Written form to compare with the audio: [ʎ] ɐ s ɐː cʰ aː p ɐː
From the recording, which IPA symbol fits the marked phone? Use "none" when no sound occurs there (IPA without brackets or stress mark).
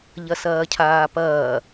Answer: ʎ